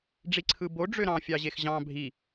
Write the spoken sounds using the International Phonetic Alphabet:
ɖ͡ʐ i ǀʰ ɯ b o ɖ͡ʐ ø ɾ ɑ̃ fʲ ɑ ʑ e x ʑ ɑ̃ bʱ i

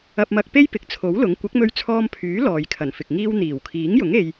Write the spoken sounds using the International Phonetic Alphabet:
ɐ˧ p̚ m ɐ˧ k̚ p e˥ j p ɪ˨ k̚ t͡sʰ o˨˥ w l ʊ˨˥ ŋ kʷ ɐ˨˥ k̚ m ɵ˧ ɥ t͡sʰ ɔː˧ m pʰ yː˨˥ l ɔː˨ j kʰ ɐ˨˩ n f ɪ˨ k̚ ŋ iː˧ w n̪ iː˨˩ w kʰ iː˨˥ ŋ j ʊ˨˥ ŋ e˧ j

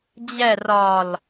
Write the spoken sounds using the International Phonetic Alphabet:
d͡ʑ ɛ r ɒ l

